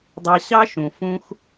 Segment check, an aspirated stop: absent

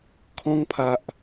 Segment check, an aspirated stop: present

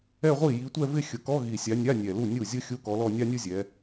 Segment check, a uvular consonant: present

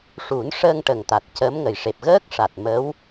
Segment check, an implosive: absent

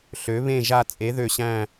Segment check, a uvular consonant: absent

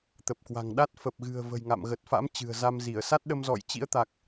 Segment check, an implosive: present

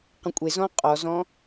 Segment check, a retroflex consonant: absent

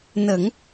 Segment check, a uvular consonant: absent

